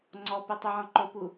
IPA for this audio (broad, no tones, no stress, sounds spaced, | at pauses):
ŋ͡ǀ ɔ p ɯ tˤ u ʕ ɔ̃ ǃ o p u